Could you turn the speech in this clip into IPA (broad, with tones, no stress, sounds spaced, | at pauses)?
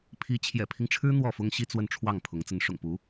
pʰ i˧˥ t͡ɕʰ j ɛ̰˨˩ pʰ i˦ ŋ ʈ͡ʂʰ ɻ̩˥ n̪ w ɔ˥˩ f ʊ˥ ŋ ɕ i˥ t͡s w ə˥˧ n ʈ͡ʂʰ w ɑ˥˩ ŋ pʰ ʊ˧˥ ŋ t͡s ə˧˥ n ʂ ʊ̰˨˩ ŋ p u˧˥